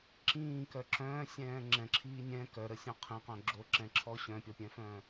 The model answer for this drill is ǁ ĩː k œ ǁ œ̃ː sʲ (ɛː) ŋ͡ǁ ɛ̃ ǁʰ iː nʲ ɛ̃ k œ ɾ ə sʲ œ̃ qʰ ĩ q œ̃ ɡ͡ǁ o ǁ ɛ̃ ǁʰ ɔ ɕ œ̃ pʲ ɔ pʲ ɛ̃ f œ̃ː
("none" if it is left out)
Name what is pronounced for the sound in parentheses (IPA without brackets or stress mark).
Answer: ɛ̃ː